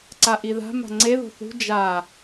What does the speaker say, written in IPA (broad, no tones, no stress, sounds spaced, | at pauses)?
ǀ a ʔ i ð a̤ m a̤ ŋ͡ǀ e ð o̤ θ ṳ d͡ʒ a